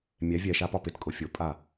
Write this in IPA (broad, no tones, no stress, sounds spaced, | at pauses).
mʲ ɛ vʲ ɛ ʃ a p ɒ p ɪ t kʼ ʊ fʲ ʊ pʼ a